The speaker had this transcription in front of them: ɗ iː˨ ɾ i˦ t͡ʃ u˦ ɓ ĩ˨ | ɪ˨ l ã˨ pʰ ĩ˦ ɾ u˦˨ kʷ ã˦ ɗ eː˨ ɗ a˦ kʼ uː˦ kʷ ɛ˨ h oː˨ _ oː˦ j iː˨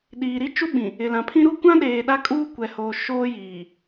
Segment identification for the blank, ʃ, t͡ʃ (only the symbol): ʃ